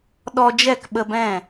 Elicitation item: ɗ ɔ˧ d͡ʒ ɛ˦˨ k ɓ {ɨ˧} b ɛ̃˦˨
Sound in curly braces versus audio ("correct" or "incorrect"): incorrect